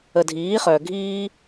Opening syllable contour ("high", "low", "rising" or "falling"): low